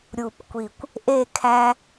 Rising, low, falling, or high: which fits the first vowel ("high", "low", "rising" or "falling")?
low